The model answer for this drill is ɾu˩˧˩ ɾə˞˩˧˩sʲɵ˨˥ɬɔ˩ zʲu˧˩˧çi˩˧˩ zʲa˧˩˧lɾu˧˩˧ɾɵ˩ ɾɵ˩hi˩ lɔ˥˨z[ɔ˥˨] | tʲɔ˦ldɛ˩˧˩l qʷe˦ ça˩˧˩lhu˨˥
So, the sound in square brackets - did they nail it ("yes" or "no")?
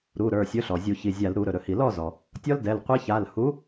no